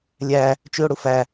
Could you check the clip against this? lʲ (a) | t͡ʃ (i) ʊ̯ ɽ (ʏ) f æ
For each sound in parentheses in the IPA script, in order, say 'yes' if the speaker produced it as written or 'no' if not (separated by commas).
no, no, no